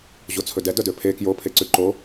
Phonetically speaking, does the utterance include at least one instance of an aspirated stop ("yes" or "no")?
yes